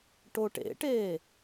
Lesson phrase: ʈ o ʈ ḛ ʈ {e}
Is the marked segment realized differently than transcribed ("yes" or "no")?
yes